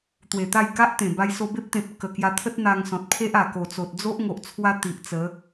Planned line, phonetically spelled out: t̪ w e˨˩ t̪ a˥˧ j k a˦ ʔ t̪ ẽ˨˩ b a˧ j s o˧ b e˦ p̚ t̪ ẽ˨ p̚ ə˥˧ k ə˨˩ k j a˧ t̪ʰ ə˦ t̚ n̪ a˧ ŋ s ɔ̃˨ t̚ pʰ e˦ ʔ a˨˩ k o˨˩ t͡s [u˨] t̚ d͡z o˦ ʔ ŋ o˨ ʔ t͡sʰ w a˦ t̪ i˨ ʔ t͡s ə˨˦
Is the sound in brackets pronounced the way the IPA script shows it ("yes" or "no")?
no